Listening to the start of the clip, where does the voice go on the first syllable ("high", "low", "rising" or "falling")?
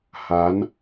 rising